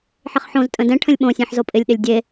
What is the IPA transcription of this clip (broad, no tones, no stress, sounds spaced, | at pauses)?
ħ ɪ χ ħ õ z tʼ ə̃ d ɛ̃ ʈʰ ə̃ lʲ ɓ õ sʲ ẽ ħ z o pʼ ɪ lʲ ɗ ɪ lʲ dʲ e